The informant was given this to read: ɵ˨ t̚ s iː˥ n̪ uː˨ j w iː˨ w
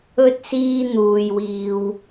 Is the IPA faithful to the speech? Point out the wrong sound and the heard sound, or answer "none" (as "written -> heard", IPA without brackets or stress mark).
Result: ɵ˨ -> ɵ˥